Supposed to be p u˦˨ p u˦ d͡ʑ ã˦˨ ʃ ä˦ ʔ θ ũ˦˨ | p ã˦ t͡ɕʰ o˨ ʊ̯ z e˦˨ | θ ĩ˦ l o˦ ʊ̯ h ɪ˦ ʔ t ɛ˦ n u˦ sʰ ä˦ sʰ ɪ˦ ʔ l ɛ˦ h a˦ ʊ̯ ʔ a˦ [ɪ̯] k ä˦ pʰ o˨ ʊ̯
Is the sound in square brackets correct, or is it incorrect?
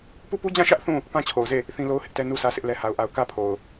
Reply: incorrect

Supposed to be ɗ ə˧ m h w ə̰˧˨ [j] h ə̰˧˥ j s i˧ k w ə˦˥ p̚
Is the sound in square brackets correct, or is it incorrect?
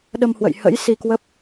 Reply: correct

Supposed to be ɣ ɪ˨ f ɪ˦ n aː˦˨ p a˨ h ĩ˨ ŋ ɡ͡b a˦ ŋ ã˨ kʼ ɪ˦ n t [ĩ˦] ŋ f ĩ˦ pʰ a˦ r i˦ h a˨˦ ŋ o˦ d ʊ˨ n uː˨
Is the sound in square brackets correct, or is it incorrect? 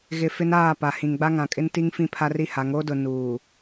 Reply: incorrect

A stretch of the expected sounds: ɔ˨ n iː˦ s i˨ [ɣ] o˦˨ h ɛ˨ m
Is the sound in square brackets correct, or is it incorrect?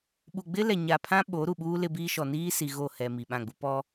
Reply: correct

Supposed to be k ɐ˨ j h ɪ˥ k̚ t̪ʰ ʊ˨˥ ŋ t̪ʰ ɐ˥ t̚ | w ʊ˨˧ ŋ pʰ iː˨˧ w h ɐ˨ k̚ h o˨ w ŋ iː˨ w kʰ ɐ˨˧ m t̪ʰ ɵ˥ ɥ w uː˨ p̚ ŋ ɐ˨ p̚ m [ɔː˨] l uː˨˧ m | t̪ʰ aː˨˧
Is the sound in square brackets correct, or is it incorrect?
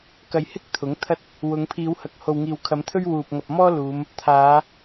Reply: incorrect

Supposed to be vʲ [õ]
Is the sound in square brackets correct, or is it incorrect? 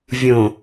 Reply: correct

